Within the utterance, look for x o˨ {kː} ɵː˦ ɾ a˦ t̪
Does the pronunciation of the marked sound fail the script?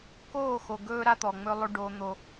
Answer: yes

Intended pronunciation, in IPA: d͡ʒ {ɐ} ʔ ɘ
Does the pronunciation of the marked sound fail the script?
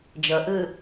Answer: no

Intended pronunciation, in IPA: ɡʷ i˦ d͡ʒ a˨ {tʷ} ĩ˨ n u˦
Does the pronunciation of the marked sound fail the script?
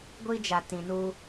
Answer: yes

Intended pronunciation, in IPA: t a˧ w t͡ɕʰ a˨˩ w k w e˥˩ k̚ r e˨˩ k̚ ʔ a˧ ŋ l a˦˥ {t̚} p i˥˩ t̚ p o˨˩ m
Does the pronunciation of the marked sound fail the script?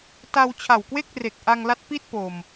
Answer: no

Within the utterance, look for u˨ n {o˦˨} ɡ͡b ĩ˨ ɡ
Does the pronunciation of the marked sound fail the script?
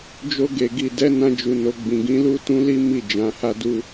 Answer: yes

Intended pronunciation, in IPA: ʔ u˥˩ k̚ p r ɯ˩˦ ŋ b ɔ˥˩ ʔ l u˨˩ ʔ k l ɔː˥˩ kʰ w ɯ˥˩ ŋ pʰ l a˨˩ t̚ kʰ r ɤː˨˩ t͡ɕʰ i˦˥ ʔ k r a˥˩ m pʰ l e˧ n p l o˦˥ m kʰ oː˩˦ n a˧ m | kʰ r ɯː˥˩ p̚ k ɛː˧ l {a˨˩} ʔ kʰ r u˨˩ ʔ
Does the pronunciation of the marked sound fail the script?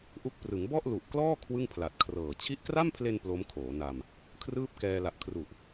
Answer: no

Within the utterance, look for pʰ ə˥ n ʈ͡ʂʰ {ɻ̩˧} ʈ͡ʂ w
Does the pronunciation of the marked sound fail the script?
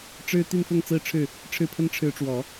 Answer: yes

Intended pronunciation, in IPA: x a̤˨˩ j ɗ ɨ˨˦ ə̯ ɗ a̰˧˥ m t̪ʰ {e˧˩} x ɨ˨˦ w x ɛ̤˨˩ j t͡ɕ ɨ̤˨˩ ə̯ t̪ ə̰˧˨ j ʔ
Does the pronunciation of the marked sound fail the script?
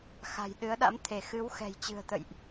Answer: no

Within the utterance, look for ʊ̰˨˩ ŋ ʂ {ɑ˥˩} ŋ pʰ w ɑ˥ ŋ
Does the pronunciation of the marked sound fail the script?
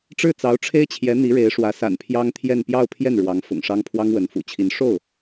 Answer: yes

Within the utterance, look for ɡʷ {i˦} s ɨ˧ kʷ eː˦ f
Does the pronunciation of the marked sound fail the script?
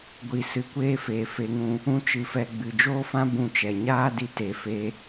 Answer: yes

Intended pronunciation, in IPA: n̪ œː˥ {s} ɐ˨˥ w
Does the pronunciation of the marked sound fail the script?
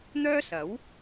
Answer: no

